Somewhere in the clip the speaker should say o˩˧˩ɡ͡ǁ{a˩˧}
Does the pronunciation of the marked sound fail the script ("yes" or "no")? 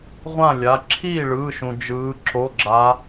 no